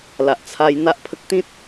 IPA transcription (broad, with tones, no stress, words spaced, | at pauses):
la˨ʔt͡sʰa˧j n̪a˦ʔpʰə˦k̚ t̪ĩ˦t̚